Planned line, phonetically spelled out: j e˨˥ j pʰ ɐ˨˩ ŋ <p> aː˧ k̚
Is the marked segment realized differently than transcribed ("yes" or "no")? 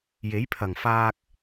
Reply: yes